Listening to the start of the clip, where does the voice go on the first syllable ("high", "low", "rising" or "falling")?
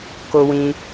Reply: high